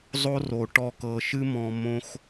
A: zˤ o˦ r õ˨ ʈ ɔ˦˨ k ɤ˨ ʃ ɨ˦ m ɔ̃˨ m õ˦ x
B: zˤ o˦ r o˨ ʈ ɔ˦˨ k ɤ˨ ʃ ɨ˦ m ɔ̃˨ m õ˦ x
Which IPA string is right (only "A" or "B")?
B